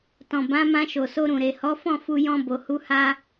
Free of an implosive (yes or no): yes